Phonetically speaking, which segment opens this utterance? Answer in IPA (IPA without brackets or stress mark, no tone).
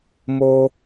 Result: m